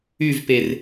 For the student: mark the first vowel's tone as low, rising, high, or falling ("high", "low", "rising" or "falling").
falling